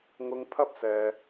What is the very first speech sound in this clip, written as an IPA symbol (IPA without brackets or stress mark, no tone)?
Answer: ŋ